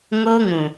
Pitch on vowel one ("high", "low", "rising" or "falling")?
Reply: high